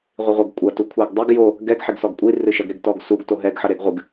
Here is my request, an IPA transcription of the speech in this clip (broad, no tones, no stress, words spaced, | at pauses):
ʁʷiʁʷɐɡ kʷʼɐ tukʷʰɛɡdˤɘɡ jo | ɡɛɡ ħeɡsɔɡkʷʼi rɨʃɐɡ ɾeɡtɔɡsuɡ toɦɛɡ ħɐɾeɡʁʷɨɡ